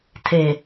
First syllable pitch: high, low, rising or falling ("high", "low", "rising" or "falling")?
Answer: low